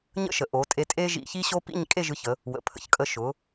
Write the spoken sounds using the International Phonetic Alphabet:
ɲ ə̰˥ ʃ ə˩˧ ʔ o˩˧ tʼ e˧ tʼ e˥ ʒ ḭ˧ ç i˥ ɕ o˥ p ḭ˥˧ ɲ kʼ e˥˧ ʒ ɯ˧ ç ə˩˧ | w ə̰˩˧ pʰ ə̰˧˩ ç kʼ ə˧ ʃ ʊ˩˧

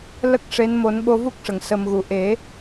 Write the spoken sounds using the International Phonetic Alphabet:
l ə˦˥ k̚ ʂ e˧˥ n m o˨˩˦ n ɓ o˧ v u˦˥ k̚ ʂ ə˨˩˨ ŋ s ə˨˩ m ɣ u˨˩˨ ʔ e˨˩˦

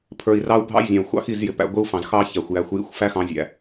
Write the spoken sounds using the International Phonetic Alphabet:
pʰ ə˞˨ i̯ r ɑ˦ u̯ bʱ ɑ̰˦ j zʲ ɑ̃˨ u̯ xʷ ɑ̰˦ x i˦˨ z j ɪ˨ p æ̰˨ ɡʷ ɪ˦ u̯ f ɑ̃˨ z x ɑ˦ ç æ˨ xʷ j æ˨˦ xʷ j ḭ˦ xʷ f æ˦ x ɑ̃˨˦ zʲ æ̰˨

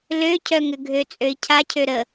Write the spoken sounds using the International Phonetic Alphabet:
l ø cʰ œ ŋ ʏ ɡʱ ø t͡sʼ ø i̯ cʰ a cʰ ø ɾ ə

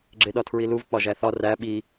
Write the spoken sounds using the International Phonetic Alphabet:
ɡ͡ǁ e ɗ ɒ tʰ ɹ i l u v k͡p ɒ ʒ æ θ ɒ r æ ɓ i

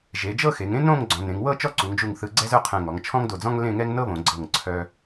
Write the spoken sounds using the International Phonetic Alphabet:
ʒ e˩˧ d͡ʒ ɤ˥˧ x e˩˧ ŋ ẽ˥ n õ˥˧ ŋ ɡ͡ǀ ɔ̃˩˧ n ẽ˩˧ ŋ w ɤ˥˧ t͡ʃ ɔ˥˧ ǀ u˩˧ ŋ d͡ʒ u˧˩ ŋ θ ɯ˧ ɡ͡ǀ ɛ˥ z œ˥ qʰ ɛ̃˧˩ ŋ ɔ˩˧ ŋ t͡ʃʰ ɔ̃˥ ŋ d o˧˩ d͡z ɔ̃˥ ŋ l ẽ˥˧ ŋ ɛ˥ ŋ n ɤ˥ β õ˩˧ ɡ͡ǀ ɤ˧˩ ŋ ǀʰ œ˧

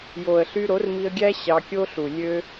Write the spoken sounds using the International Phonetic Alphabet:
j o˨ ə̯ ɬ y˧ ɾ o˨˦ r m i˧ ə̯ ɡʲ æ˦ ɕ ɑ˧ kʲ o˦ ɬ u˨ lʲ ø˦

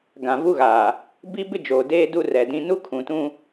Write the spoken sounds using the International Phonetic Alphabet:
ɡ ã˨ v u˦ ɣ aː˨ | b i˦ b ɪ˦ d͡ʒ oː˨ d eː˦ d u˦ r ɛ˨ d ĩ˦ n u˦ kʰ ũ˨ t ũ˦

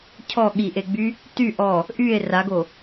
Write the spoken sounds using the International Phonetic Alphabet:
cʰ ɔ ɠ i ʔ e ɡ͡b y | t y ʔ ɔ | ʔ y e̯ r a ɡ o

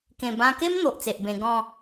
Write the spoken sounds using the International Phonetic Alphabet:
k ẽ˨˩ b ã˧ k e˦ m n̪ o˨ ʔ t͡s e˨ ʔ b ẽ˧ ɡ ɔ̃˥˧

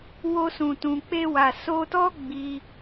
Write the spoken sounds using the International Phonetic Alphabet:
w o˧ s ũ˨ t ũ˨ k͡p e˧ w a˨ s o˧ t ɔ˦ ɡ͡b i˧

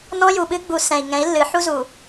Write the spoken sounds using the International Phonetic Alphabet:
n ɔ̃˦ j u˨ ɓ ɨ˦ ɡ͡b u˨ s ɛ̃˨ i̯ ŋ ɛ̃˨˦ i̯ lː ɨ˨˦ ħ u˦ z u˨

